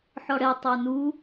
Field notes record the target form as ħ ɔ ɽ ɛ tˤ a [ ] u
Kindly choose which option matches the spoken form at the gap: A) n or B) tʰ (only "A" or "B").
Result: A